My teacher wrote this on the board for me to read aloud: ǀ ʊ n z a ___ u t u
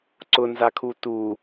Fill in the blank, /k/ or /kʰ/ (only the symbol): kʰ